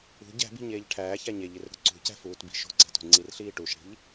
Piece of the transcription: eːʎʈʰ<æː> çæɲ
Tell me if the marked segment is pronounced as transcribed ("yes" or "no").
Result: yes